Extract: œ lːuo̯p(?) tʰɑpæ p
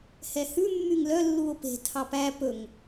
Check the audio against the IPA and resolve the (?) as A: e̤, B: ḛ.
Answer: A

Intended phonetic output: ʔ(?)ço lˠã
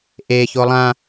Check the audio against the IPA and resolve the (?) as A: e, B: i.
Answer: A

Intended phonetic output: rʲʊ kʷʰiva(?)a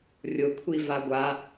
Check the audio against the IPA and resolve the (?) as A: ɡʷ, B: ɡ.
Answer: A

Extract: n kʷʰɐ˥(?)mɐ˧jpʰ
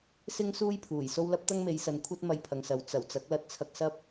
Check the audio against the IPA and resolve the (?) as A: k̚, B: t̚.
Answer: B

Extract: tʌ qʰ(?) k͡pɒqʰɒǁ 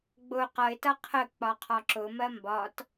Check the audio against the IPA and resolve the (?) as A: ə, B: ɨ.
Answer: A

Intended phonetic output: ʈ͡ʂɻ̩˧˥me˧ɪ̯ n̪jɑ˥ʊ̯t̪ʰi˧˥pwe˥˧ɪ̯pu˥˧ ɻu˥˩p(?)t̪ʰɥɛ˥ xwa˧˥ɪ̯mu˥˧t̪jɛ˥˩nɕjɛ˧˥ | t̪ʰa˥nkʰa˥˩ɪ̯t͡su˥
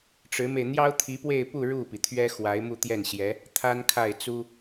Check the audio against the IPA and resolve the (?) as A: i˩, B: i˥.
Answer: A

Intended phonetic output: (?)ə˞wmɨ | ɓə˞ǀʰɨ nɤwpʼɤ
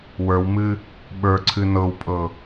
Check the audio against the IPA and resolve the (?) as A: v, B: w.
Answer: B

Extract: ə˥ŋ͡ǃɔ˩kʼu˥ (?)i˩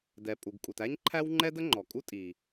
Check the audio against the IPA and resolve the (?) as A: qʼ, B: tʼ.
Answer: B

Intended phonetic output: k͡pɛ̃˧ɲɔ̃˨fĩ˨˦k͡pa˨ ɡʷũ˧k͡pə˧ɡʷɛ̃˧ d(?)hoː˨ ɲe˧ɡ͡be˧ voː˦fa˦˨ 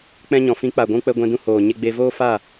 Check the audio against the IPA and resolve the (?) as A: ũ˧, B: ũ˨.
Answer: A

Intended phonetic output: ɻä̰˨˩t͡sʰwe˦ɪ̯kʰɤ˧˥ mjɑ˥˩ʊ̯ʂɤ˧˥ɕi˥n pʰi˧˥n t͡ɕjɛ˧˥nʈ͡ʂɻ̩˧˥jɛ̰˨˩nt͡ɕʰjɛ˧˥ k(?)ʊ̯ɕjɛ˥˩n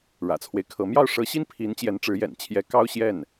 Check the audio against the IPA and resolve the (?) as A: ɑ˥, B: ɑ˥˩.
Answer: A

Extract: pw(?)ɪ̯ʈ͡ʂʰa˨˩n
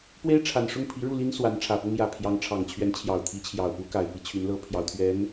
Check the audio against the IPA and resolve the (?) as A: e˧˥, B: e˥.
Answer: B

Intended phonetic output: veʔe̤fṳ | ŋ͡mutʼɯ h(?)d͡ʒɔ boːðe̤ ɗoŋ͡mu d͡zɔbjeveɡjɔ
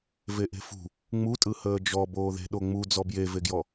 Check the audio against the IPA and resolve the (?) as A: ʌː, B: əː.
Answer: B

